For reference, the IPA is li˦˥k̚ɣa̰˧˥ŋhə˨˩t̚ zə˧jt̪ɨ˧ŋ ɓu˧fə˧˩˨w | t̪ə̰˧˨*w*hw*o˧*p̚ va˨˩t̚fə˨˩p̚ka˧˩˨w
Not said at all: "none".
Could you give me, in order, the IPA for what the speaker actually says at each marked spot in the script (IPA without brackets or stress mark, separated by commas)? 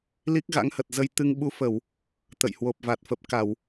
j, o˨˩